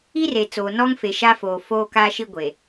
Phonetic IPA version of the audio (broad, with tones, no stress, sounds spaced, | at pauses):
i˦ r e˨ t͡s oː˨ n ɔ˦ ŋ f e˨ ʃ a˦ f oː˨ f oː˦ k aː˦ ʃ i˦ ɡʷ e˨